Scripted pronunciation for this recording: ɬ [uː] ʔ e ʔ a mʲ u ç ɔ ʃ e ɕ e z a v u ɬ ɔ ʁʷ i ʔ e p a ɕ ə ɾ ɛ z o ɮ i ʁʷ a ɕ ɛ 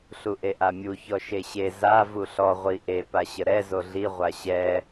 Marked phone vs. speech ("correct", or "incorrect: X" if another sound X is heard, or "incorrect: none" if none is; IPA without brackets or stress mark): incorrect: u